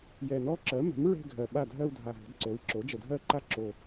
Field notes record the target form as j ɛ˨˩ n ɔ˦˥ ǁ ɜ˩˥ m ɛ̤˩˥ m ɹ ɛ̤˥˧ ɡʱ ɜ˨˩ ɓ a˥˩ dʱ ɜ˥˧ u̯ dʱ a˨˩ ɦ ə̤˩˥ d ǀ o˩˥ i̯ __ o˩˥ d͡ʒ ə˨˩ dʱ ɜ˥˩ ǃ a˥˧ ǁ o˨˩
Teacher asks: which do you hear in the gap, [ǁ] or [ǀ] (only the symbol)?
ǁ